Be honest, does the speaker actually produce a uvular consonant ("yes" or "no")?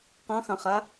yes